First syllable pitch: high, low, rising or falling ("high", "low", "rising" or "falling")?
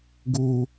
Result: low